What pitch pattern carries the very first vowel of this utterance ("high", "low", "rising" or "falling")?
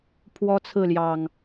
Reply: high